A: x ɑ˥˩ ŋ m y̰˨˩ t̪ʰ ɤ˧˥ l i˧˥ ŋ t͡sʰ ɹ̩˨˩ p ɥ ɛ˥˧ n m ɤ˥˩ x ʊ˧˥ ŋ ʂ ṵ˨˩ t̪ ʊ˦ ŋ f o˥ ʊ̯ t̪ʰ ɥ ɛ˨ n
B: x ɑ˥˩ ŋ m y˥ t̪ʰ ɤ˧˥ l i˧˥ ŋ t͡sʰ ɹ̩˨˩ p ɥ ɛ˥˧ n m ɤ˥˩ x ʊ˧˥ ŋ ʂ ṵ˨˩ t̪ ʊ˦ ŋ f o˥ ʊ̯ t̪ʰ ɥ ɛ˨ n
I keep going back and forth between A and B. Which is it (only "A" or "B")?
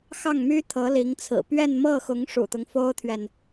B